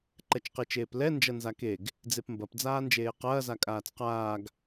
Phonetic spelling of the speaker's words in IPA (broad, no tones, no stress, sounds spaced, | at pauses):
ǃ ɛ t͡ʃ q e t͡ʃ eː p l ɛ n d͡ʒ ɐ n z a k e ɡ | d͡z e p m b ɐ p d͡z aː n d͡ʒ eː q ɐː z a kʼ aː t͡s q aː ɡ